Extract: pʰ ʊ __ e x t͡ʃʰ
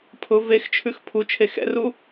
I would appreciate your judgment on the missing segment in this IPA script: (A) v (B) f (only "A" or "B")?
A